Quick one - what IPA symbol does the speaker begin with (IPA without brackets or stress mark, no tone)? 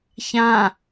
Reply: ç